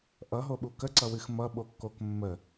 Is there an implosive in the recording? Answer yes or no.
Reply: yes